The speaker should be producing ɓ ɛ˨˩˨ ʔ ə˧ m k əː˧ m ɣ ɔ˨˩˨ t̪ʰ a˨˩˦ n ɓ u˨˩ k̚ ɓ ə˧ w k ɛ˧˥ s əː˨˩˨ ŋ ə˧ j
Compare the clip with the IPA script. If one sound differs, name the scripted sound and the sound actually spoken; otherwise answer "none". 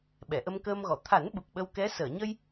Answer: ŋ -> ɲ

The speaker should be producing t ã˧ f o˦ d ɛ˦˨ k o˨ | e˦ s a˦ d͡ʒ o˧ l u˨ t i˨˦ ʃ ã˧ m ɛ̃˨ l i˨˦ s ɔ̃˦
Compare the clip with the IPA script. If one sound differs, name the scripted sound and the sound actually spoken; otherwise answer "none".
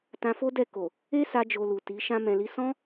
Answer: none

